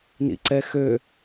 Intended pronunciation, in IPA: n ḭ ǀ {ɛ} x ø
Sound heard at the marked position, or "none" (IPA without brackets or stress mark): ɛ